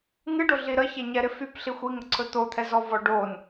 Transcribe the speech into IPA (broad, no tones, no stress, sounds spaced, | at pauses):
ŋ ɨ ɖ o ɮ i ɾ ə ç ɛ ɲ ɛ ɾ ɪ f y p ɬ i xʷ i ŋ ə ǀʰ ɵ t̪ o t̪ʰ ɛ z ɔ v ɔ ɖ o n